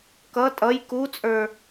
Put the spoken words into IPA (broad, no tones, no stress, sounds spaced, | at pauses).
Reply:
k ʌ tʼ ʌ j k u t͡sʼ ə˞